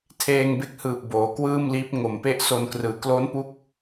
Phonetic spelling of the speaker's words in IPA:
tʰ eː˧ ŋ b e˦˥ k̚ h ɯː˨˩ p̚ b oː˩˦ k w ɯː˥˩ m l iː˦˥ p̚ ŋ o˨˩ m p e˥˩ ʔ s o˧ n k r ɯː˩˦ k l oː˦˥ n p u˦˥ k̚

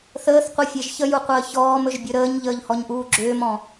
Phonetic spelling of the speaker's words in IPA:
θ əː θ qʷ i fʲ e ʒ ç ə j u qʷ əː ç ɔː m ɵ ʒ bʲ ɵ ɾ əː ɲ ʎ əː ʎ h ɔ ɲ ʔ uː ɡ͡ǁ ʏː m ɔ̃

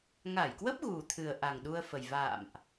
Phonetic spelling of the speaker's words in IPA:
ŋ a˧˩ j k w ə˦˥ p̚ ɣ u˨˩ t̪ʰ ɨ˨˩ ə̯ ʔ a˨˩ ŋ ɗ u˧ ə̯ f ə˨˩ j v a̰ː˧˨ m ʔ

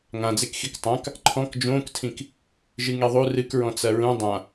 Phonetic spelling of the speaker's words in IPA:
ŋ ã d͡z e k x i k tˤ ã k | ǃʰ ɔ̃ k d͡ʒ õː k tʰ ĩ k | ʒ ɨ ŋ e ðˤ u r ɨ k ɹ ɔ̃ t͡s ɐ ɹ ũ dˤ ã

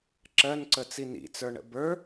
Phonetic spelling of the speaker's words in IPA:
ǁ ɜ n ǀ ə t͡s i n ḭ t͡s ə˞ ɳ ə̰ b ə˞

